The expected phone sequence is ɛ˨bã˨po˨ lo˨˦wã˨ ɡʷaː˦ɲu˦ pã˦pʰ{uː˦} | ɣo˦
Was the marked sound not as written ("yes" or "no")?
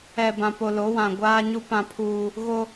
no